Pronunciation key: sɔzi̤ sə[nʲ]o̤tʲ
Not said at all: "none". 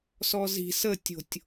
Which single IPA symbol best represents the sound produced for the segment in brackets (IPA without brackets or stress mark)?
tʲ